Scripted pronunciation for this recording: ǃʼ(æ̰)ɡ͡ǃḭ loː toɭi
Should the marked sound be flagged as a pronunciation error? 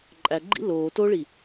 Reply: yes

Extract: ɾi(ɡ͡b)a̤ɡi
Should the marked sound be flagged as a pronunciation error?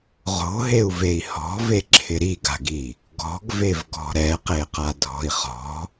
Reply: yes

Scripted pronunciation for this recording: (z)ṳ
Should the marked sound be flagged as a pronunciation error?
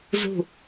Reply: no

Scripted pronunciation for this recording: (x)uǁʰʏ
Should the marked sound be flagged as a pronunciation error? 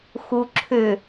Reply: no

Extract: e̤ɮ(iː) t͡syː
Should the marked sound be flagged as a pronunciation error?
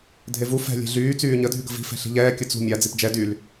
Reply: yes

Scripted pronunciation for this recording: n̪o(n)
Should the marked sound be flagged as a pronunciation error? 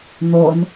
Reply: no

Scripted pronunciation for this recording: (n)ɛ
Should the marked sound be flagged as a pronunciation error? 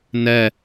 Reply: no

